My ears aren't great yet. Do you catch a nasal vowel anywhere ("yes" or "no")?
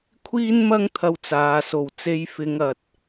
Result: no